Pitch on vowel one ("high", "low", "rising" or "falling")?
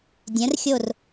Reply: rising